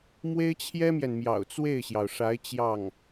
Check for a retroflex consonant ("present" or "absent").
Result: present